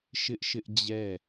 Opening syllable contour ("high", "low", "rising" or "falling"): high